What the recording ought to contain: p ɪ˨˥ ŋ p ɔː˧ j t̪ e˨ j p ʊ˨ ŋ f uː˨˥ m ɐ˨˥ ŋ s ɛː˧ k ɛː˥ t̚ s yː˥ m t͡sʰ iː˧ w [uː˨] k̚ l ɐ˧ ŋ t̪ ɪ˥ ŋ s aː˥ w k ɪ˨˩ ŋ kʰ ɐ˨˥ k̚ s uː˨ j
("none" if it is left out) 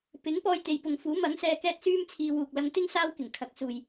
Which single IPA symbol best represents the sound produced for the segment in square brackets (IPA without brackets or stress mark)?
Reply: uː˨